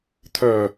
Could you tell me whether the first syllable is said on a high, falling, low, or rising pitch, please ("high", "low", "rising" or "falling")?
low